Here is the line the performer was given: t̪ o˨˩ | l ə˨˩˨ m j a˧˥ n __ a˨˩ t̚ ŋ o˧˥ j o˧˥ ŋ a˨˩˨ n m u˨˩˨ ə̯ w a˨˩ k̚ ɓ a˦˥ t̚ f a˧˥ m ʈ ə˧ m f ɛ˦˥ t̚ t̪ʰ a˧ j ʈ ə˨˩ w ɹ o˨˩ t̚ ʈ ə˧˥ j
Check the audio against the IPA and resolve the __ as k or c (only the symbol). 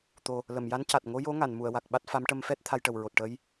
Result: c